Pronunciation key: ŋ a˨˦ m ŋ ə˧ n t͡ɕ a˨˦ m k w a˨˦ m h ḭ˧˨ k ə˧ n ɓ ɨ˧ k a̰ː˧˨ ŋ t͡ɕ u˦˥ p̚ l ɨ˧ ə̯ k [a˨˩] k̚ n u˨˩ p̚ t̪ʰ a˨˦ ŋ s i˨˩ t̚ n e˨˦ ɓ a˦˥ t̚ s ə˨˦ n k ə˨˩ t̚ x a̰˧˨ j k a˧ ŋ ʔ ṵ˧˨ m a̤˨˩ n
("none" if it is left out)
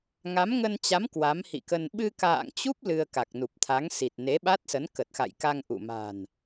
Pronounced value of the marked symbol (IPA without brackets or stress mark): a˨˩